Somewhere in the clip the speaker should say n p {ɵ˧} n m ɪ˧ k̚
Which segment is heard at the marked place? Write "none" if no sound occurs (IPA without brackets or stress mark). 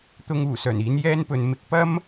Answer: ɵ˨˧